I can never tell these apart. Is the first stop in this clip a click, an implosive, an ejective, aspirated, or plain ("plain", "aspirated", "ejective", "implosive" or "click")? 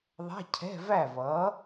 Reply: aspirated